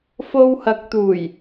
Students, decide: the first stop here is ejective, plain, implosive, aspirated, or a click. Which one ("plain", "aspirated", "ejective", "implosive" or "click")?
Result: plain